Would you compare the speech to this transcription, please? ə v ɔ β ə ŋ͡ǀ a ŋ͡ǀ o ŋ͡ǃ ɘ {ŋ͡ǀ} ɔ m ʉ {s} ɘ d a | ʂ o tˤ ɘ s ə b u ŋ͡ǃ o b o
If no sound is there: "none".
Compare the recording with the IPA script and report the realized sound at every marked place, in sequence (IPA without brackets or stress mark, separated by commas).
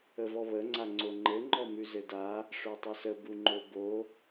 ŋ͡ǃ, z